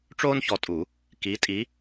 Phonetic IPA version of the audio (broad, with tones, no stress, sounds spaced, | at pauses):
ʈ͡ʂ oː˥ n ç ɔ˨˦ tʼ u˨˩˦ | k i˨˦ tʼ i˨˦